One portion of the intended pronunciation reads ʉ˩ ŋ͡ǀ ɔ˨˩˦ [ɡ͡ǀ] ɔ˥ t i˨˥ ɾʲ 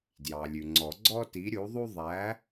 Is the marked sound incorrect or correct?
correct